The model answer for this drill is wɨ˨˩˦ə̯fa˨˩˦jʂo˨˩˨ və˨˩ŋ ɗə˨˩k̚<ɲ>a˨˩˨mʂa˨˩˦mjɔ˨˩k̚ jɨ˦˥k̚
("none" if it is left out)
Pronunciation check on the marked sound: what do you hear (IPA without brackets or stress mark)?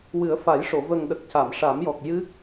c